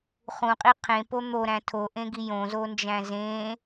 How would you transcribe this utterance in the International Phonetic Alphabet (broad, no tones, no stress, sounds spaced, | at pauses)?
χ ũ qʼ i qʰ ẽ p o n̪ o ɾ æ̃ tʰ o ʔ ẽ ɡ i j õ z o n d͡ʒ æ̃ z ẽ